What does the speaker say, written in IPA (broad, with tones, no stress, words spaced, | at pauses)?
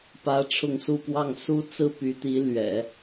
pä˧˥ ʈ͡ʂʰʊ˥˧ŋsu˥˧ pwɑ˥˩ŋ su˥t͡sɹ̩˥py˧˥t̪i˧˥ lɥɛ̰˨˩˦